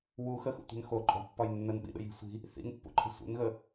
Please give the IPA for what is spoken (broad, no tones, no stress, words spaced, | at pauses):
wu xəxṵtʷɛ̤n xo ǃʼɔ̤pːɒj nːənɓḭɗə̰ji̤ sʷi̤ | θḭnpːṵǃʰə̤ sʷɛ̰nɣə